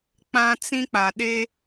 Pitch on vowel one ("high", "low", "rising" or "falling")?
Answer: high